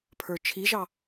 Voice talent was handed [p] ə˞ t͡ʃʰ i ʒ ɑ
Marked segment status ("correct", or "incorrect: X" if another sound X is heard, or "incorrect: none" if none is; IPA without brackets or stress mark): incorrect: pʰ